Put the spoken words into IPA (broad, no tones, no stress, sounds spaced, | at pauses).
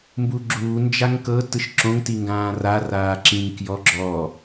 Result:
m b u ɡ͡ǁ uː n d͡ʒ a ŋ k ɤ t ɯ ʃ ǁ õ ŋ t i ŋ ɡ ãː r a r aː ǁ ĩ ŋ k j ɔ ɡ͡ǁ ɔ